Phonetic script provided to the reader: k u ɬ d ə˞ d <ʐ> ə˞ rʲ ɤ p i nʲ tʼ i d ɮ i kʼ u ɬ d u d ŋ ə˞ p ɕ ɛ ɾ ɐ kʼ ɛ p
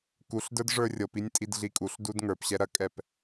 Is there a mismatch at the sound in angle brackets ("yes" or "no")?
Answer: no